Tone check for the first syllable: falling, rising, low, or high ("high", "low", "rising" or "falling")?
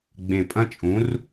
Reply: low